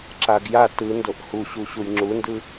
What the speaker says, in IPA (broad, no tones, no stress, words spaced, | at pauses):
ǁaɡ ja tɯndoʔ huɕuɕuj ŋ͡ǁundɯ